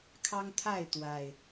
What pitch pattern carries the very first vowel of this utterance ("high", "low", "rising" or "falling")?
high